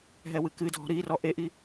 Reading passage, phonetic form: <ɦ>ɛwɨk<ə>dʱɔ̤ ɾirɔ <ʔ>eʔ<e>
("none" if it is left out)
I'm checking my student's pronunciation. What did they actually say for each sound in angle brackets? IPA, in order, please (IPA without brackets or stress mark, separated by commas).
ɦ, ɨ, ʔ, i